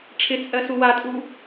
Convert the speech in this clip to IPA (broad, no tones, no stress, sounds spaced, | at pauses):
ʈ͡ʂʰ ɪ t͡sʼ ɜ s u w a tʼ u